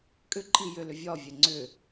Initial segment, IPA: kʼ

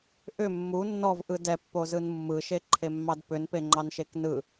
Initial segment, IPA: ʔ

